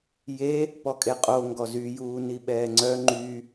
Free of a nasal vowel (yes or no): yes